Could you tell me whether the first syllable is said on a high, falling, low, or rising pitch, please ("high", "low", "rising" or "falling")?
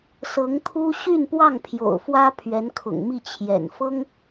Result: rising